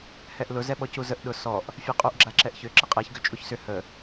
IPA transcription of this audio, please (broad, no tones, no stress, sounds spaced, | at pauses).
h ɛ ʔ l ʊ z ɛ ɓ ɔ c u z ə ʔ ɗ ʊ s ɔ ʔ | fʲ ɛ qʼ u ʔ ɡ͡ǁ a ǁ ɛ ʔ ç ʏ ǁ ə qʼ ɛ ç ɡ ʏ t͡ʃʼ u ç s ʏ h ə